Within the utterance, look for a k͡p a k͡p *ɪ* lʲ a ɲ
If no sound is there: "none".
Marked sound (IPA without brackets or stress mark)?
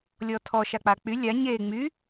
y